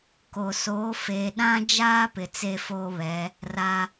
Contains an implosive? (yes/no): yes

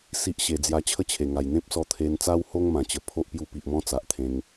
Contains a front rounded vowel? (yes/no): no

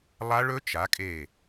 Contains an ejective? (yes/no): yes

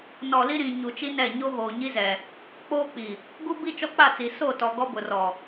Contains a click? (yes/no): no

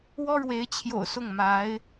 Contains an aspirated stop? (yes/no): yes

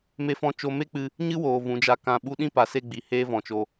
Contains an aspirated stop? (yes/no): no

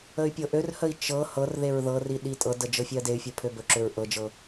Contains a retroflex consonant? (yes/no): no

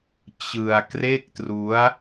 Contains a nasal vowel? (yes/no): no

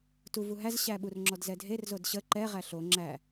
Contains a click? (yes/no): yes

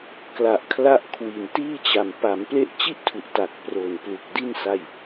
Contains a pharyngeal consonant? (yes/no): no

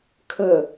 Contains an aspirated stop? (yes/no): yes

